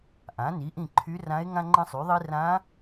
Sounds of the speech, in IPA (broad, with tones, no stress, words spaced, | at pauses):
ʔã˩˥ni˩˥ʔĩ˦˨ ǃʰy˧˥rã˧˥e̯ ŋã˥ŋ͡ǃə̃˥sˤy˩˥ðˤi˥ rã˧˥